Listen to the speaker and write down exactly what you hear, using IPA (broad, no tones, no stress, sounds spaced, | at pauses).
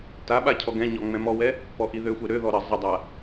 t a ɓ a cʰ ɔ ɡ ɛ̃ ɲ ɔ ŋ͡m ɛ̃ m ɔ w ɛ | p ɔ ʔ i ð ø xʷ ɛ ɾ ø ð ɔ ɾ ə zˤ ə dˤ a